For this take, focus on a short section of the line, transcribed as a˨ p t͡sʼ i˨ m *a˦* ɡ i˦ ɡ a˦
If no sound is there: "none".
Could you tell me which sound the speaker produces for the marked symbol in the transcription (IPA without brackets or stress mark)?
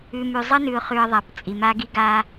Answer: a˦